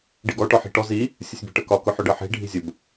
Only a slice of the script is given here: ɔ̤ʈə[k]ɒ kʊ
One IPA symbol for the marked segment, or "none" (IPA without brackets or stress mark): k